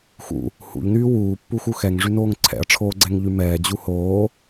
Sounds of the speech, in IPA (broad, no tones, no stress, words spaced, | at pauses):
xṵ | hṵʎnyː wuːpːuxu xɛŋʐynoːŋ ǀʰɛ̰ɐ̯ʈ͡ʂʰoːɡ͡ǀɛŋʎy mɛːd͡ʑu hoː